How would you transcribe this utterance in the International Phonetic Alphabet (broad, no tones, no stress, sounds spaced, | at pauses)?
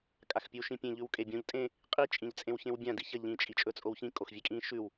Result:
kʼ a x pʲ ʉ w ʃ ĩ pʲ ẽ ʎ ʉ w kʼ e bʲ õ ʎ tʼ ẽ | qʼ i t͡ʃʼ ĩ ʎ t͡sʼ ẽ w ç ẽ w bʲ ã d i ç ɐ ʎ ĩ t͡ʃʼ i t͡ʃʼ ɵ t͡sʼ o w ç ĩ kʼ o x vʲ e kʼ ĩ ʃ ʉ w